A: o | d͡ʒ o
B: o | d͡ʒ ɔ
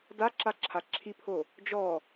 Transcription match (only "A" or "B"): B